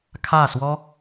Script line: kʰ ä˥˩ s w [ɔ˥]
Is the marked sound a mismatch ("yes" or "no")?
no